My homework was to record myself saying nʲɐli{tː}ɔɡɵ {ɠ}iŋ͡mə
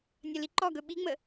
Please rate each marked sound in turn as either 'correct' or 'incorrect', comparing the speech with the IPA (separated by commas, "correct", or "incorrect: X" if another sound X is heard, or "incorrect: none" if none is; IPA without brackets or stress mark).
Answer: incorrect: ǃ, incorrect: ɓ